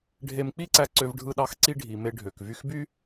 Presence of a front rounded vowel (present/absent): present